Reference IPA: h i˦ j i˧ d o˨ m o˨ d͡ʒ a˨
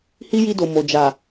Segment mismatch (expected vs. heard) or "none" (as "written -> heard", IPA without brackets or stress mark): none